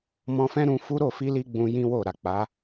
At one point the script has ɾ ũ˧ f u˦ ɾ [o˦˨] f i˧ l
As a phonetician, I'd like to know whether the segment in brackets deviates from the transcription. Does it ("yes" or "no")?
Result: no